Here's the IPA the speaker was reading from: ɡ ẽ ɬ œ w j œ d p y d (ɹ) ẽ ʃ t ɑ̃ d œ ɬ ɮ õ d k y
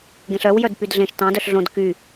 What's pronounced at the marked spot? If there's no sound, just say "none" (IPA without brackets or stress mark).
ɮ